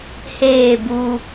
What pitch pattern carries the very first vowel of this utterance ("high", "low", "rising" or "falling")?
falling